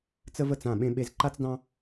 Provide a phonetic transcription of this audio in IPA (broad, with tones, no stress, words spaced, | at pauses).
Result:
t͡sə˦və˥˩t͡s ã˥˩ɓẽ˦ɓe˦z ǃa˦t͡sdɑ̃˦